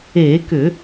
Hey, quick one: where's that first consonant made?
velum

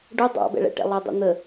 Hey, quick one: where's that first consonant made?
retroflex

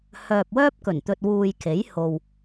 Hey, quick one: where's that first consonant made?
throat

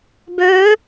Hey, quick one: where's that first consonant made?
lips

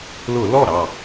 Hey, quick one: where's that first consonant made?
tongue tip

